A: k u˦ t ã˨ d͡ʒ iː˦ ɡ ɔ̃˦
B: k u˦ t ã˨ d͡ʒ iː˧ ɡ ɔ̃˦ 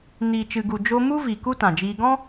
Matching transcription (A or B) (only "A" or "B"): B